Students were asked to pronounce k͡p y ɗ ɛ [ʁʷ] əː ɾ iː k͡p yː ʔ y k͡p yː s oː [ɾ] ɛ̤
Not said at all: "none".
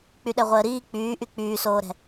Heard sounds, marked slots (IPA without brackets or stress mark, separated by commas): ʁʷ, ɾ